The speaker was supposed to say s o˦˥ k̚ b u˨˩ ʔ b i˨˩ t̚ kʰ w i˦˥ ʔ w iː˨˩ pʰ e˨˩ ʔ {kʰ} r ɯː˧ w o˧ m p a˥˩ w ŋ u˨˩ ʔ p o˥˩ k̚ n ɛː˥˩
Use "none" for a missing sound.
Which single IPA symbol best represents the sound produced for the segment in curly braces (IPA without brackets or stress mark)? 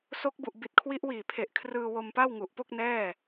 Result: kʰ